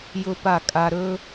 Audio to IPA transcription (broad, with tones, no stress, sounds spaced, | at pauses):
j ʊ˥ p a˥˩ kʼ a˧ ɾ ɵ˥